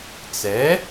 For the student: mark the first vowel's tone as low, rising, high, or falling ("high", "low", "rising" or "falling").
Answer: rising